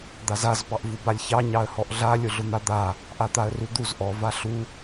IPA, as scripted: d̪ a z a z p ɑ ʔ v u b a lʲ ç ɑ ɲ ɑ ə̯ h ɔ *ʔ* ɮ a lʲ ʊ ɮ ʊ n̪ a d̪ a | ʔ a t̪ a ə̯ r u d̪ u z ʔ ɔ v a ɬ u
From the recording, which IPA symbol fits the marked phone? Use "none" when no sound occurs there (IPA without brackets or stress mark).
ʔ